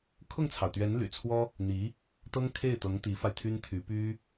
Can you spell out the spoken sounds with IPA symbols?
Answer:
kʰ ʊ˥˩ ŋ t͡sʰ ɑ˩ ʊ̯ t̪ ɥ ɛ˧˥ n l y̰˨˩ t͡sʰ w ɔ˥ | n̪ i˧˥ | t̪ ɤ˥ ŋ kʰ e˥˩ ɪ̯ t̪ ɤ˧˥ ŋ t̪ i˧˥ f a˧ ɪ̯ t̪ʰ y˥ n t̪ʰ y˧˥ p y˥

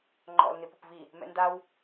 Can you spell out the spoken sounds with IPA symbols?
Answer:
ŋ͡ǃ ɔ̰ l n ɪ p ʊ p v i | m ɛ̰ n d a w

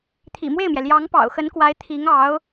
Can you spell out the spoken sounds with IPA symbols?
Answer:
t̪ʰ ḭ˨˩ m w e˥˩ ɪ̯ m j ɛ˩ l j ɑ˧˥ ŋ p ɑ̰˨˩ ʊ̯ x ə˧˥ n k w a˧˥ ɪ̯ t̪ʰ i˧˥ ŋ ɑ˧˥ ʊ̯

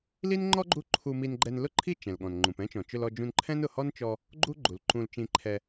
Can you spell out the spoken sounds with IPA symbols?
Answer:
l i˥ n ŋ͡ǃ ɔ˥ ɡ͡ǃ u˥ ǃʰ u˧ m i˧ n ɡ͡ǃ ɛ˧ n l ʊ˥ ǃʰ i˥ t͡ʃ ɛ̃˩ l ɠ ɔ̃˩ n ŋ͡ǃ ũ˩ p ɛ̃˥ t͡ʃ ɔ̃˩ t͡ʃ ʊ˧ l ɔ˧ d͡ʒ ũ˧ n ǃʰ ɛ̃˥ n ʊ˩ h ɔ˥ n t͡ʃ ɔ˧ | ɡ͡ǃ u˥ ɡ͡ǃ u˩ l ǃ ũ˧ l t͡ʃ ĩ˧ ǃʰ ɛ˧

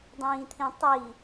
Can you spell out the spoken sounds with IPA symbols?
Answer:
dˤ ĩː t̪ʰ ĩ tˤ i

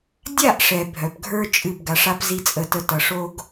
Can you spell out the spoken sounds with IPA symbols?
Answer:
dʲ a˦˨ ʔ ʂ ɛ˨ bʱ œ˨ p ɡʱ ə˞˦ t͡ʃʼ ɨ˦˨ b ɡ a˧ ʂ a˦ p z i˦ t͡sʼ ə˦˨ t ə˦ t ʌ˧ ʂ o˦ ɡ

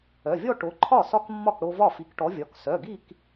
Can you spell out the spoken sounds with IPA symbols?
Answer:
œ˩˧˩ vʲ ɔ˥˧ ʈ o˨˥ ǃʰ ɒ˥˩ s ɒ˥˧ k mː ɒ˥˩ k ɽ o˧ v ɒ˥˩ f i˨˥ k ʈ ɔ˨˥ vʲ ɒ˩˧˩ k s œ˩˧˩ ɡ i˥˧ k

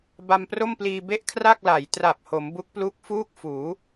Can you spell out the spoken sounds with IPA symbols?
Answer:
b a˧ m p r o˥˩ m p l iː˧ b e˦˥ ʔ kʰ r a˥˩ k̚ l a˩˦ j t r a˨˩ p̚ h o˩˦ m b u˦˥ k̚ p l u˦˥ k̚ f uː˥˩ k̚ f uː˩˦

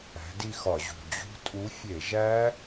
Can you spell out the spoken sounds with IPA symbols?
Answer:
æ̤˨˥ d i˥˧ x ɒ˧˩˧ ʑ ṳ˨˩ d͡ʑ ṳ˦˥ tʼ u˨˥ fʲ e˧˩˧ ʒ æ˦˥

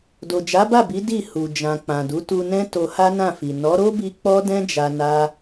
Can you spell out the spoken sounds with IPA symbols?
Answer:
d o˨ d͡ʒ a˨˦ b a˦˨ b i˨˦ d i˦˨ h u˨ d͡ʒ ã˨ k͡p ã˨ d u˨˦ t u˧ n ɛ̃˦ t o˧ h a˦ n ã˦˨ f i˨ n ɔ˨˦ ɾ o˦ b i˧ k͡p ɔ˦ d ɛ̃˦ d͡ʒ a˧ n a˦

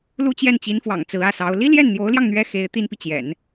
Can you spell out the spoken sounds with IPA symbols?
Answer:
l u˥˧ t͡ɕ j ɛ˥˩ n t͡ɕ i˧˥ n f w ɑ̰˨˩ ŋ t͡s ɹ̩˧˥ ä˥˩ s ɑ˧˥ ʊ̯ l i˥ l j ɛ˥˩ n n̪ j o˧˥ ʊ̯ l j ɑ˧ ŋ n̪ ɥ ɛ˥ x e˧˥ ɪ̯ t̪ i˥ n p i˨ t͡ɕ j ɛ̰˨˩˦ n

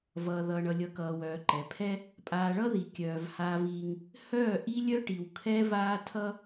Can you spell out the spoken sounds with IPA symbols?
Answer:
v ʌː˨ ð ʌː˨ ɳ ʌ˨ lʲ ʌ˨ k ʌː˨ w œː˨ ǃ ɛ˨ pʰ ɛ˦ | pʼ aː˨ ɭ ʌ˦ ð i˨ kʲ œː˨ v h aː˦ v iː˦ ŋ | h œː˦˨ ʔ i˦ lʲ œ˦ ʈ i˨ w kʰ ɛ˦ v aː˦ tʰ ʌ˦

